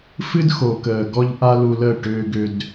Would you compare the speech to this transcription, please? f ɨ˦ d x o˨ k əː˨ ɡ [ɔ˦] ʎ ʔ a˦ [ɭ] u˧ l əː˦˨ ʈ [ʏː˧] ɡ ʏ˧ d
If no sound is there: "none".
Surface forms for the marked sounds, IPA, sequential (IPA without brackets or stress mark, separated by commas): ɔ˦, l, ʏː˧